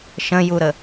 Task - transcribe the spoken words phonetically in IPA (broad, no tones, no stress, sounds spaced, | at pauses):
ʃ ə̃ j u ɾ ə